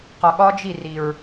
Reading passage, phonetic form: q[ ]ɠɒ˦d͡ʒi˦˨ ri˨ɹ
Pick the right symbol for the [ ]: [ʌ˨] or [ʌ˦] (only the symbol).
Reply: ʌ˨